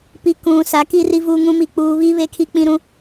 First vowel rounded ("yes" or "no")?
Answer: no